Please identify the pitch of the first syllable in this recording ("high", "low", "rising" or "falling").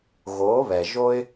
rising